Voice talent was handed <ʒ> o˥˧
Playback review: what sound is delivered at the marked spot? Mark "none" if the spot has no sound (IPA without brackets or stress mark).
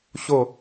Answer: ɕ